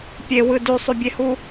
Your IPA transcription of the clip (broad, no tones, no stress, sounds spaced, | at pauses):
pʲ e w ɯ d y sˤ y bʲ e h u